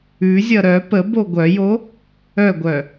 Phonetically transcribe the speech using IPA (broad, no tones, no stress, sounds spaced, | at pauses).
ʉ zʲ ʌ ɾ œ p ə b o ɡʷ œ j o | œ ɡʷ œ